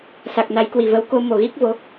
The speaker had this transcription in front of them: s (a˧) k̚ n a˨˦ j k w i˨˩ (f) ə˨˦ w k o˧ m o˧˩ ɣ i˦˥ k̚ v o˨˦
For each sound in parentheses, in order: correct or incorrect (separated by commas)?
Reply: incorrect, incorrect